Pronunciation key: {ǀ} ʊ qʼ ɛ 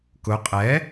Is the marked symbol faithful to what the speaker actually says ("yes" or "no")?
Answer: no